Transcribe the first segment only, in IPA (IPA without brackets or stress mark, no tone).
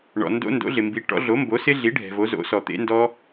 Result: ɳ